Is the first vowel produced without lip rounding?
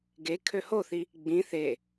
yes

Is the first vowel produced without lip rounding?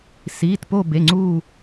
yes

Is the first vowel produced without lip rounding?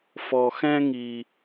no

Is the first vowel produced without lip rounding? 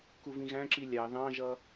no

